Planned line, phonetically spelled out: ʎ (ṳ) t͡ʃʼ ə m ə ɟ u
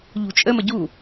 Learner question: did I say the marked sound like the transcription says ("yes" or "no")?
yes